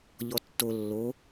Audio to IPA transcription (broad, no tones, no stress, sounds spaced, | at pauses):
ʎ ɔ tː o lː o